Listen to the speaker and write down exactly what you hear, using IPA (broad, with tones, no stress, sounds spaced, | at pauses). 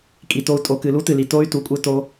kʼ i˨ t o˧ u̯ tʼ o˨ k ɨ˨ l u˦ t ɨ˨ l i˨ t o˦ y̯ t u˧ kʷʼ ɨ˦ t o˧